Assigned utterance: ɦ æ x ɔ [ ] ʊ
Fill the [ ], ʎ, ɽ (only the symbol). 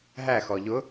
ʎ